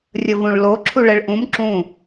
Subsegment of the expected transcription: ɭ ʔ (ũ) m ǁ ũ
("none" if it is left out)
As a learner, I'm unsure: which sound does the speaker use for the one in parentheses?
ũ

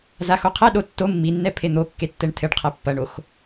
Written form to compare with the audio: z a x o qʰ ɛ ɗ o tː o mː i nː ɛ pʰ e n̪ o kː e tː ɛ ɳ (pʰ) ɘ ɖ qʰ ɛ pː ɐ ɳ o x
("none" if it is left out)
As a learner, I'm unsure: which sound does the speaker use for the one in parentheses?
tʰ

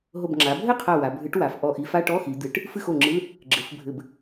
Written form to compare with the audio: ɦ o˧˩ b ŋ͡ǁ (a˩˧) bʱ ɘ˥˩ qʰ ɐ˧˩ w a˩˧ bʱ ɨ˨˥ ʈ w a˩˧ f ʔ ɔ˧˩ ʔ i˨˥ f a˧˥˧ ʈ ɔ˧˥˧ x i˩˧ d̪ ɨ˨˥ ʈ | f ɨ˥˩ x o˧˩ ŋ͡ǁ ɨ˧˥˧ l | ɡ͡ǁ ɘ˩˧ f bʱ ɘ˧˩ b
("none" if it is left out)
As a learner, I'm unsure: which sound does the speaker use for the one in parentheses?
a˩˧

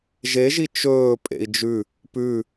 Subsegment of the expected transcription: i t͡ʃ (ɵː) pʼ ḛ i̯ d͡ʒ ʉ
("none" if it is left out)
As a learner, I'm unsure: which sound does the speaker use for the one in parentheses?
ɵː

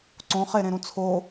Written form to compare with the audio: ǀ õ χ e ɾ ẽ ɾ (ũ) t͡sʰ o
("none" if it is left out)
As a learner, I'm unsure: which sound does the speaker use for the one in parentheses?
ũ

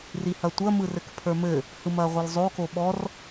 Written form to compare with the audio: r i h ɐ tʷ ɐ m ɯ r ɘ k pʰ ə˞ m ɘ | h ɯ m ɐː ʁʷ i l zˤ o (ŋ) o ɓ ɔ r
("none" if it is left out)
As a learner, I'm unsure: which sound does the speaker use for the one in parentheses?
k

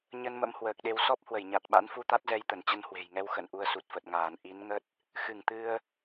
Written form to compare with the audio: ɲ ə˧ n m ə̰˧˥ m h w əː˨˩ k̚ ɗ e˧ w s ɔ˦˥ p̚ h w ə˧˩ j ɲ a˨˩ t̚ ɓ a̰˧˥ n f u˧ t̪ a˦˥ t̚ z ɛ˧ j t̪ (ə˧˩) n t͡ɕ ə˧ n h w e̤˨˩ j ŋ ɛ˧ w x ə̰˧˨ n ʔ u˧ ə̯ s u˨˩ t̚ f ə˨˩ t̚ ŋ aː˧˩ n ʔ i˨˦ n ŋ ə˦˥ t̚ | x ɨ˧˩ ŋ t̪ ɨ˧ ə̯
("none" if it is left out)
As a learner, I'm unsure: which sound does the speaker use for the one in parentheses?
ə˧˩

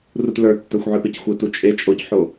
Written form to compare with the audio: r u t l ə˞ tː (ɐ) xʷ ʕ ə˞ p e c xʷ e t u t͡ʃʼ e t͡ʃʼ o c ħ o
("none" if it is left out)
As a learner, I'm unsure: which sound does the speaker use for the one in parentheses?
ə˞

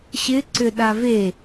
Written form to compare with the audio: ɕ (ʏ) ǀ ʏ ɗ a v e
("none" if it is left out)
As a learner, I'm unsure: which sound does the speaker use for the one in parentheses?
ɪ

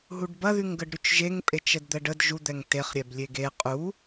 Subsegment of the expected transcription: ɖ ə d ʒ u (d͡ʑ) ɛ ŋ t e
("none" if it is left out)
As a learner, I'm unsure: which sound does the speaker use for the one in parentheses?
d̪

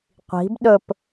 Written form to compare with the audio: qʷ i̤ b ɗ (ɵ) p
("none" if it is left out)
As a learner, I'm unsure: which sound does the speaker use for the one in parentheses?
ɵ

